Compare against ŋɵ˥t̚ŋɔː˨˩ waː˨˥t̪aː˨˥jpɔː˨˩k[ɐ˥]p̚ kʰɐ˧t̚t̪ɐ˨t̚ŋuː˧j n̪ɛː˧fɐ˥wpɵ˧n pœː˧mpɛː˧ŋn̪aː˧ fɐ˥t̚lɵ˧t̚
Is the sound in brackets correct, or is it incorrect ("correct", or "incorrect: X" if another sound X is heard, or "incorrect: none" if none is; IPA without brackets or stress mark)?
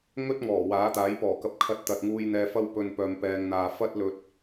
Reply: incorrect: ɐ˧